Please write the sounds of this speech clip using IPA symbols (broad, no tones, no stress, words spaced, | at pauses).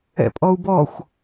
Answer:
ɛ̰pʼɔu̯bɔxʷ